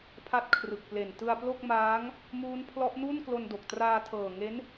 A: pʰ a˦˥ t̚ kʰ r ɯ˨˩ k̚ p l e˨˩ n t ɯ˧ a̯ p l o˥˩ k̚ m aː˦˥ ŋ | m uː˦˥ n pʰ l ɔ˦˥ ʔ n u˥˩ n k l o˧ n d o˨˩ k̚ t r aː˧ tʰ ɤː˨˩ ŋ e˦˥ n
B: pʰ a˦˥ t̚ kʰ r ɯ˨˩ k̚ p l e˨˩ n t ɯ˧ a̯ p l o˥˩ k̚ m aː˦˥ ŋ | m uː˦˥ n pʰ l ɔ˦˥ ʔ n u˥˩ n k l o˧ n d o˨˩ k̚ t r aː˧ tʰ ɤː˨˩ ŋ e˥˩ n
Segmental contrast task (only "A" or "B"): A